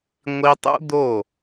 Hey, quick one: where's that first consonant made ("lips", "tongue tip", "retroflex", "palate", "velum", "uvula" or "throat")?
velum